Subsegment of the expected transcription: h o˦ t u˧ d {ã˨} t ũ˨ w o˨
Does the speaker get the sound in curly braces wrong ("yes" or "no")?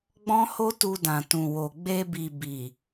no